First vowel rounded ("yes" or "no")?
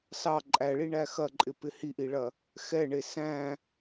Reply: no